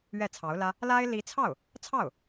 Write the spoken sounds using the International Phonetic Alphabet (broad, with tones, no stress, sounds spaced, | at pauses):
ɥ ɛ˥˩ t͡sʰ ɑ˧˥ ʊ̯ l ä˥ | l a˥ ɪ̯ l i˧˥ t͡sʰ ɑ˥˩ ʊ̯ | t͡sʰ ɑ˥˩ ʊ̯